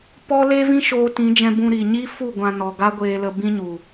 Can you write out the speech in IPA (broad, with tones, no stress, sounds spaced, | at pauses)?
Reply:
p ɔ˦ l e˦ v ĩ˦ ʃ oː˧ t ĩ˨˦ d͡ʒ ɛ̃˧ b ũ˧ ɾ i˨ ɲ i˦ f u˦˨ ɡʷ ã˧ n ɔ˨ ɡ a˦ ɡʷ eː˧ l ə˧ b ĩ˦ ɲ u˨